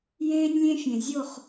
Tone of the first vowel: high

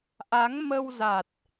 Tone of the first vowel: rising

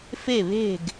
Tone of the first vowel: falling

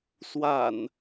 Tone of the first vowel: low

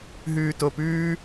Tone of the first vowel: low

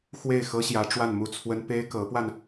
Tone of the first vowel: falling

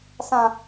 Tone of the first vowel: low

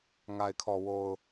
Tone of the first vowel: low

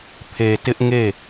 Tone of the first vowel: low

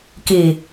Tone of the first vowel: low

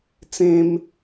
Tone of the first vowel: high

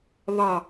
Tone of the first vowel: falling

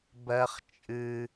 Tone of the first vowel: high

